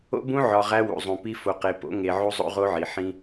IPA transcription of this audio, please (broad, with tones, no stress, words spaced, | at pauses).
o̰˦bũ˦ ʕɒ˨ ʁæ˦wṵ˨zˤũ˨pi˦ fo˨qe˨po̰˨˦ ŋe˨ ʕu˦zˤo̰˦ʁo˦ʕi˨ ħĩ˦